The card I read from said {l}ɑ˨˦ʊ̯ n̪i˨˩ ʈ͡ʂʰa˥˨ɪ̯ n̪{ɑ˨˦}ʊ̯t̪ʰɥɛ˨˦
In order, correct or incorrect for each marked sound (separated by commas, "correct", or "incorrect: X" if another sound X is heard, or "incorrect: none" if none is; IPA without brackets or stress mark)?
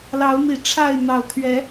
correct, incorrect: ɑ˨˩